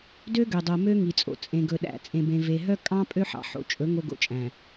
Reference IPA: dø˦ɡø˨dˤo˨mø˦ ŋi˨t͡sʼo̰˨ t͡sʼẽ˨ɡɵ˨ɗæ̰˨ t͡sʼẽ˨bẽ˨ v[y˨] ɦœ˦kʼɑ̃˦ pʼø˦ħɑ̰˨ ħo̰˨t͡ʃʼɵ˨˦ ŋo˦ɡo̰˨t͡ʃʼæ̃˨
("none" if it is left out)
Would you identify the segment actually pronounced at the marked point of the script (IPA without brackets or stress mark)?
e˨